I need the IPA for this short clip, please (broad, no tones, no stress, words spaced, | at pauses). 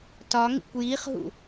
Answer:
tɒŋḭkʷ jiχɦṵ